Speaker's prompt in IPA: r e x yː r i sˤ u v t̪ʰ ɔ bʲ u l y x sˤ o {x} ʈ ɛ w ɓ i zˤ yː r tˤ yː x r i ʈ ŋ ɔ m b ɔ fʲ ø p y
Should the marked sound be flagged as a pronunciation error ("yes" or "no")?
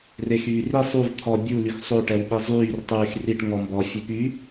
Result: yes